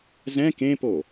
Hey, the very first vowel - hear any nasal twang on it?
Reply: yes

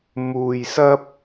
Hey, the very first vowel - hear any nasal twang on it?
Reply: no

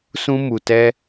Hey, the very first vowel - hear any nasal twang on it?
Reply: yes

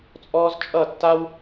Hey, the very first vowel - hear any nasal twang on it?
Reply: no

